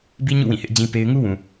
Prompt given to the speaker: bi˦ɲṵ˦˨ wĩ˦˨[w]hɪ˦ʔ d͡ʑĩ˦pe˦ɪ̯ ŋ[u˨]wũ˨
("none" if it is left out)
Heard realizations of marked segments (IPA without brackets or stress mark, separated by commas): none, u˦